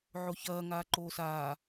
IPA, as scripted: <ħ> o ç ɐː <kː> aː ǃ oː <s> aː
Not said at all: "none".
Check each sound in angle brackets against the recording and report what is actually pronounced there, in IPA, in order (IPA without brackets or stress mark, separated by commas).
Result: ʕ, ŋ, s